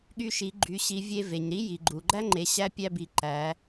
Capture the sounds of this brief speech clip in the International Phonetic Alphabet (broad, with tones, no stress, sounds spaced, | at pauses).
ɠ y˧ ʃ i˩˧ ɡ͡ǃ y˩˧ ɕ i˩˧ vʲ e˧ v e˩ ɲ ɾ i˧˥ j i˩ ɡ͡ǃ u˩ ɡ͡ǃ æ˥ ŋ͡ǃ e˩˧ ɕ æ˧˥ pʲ æ˧ b i˩˧ ǃ æ˩˧